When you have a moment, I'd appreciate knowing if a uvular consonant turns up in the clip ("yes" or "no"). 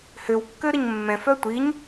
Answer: no